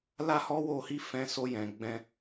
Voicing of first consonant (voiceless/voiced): voiced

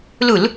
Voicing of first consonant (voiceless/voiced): voiced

